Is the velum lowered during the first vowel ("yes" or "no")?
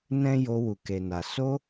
yes